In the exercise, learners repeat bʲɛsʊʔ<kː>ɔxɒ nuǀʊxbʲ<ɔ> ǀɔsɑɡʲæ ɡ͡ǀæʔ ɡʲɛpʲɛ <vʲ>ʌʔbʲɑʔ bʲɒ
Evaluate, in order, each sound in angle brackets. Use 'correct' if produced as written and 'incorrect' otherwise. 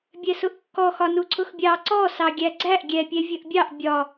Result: correct, incorrect: ɑ, correct

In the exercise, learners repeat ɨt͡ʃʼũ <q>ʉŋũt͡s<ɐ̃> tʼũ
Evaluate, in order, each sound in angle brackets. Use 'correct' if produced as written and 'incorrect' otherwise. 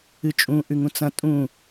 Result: incorrect: ʔ, correct

